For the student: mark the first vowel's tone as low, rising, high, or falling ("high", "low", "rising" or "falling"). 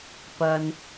low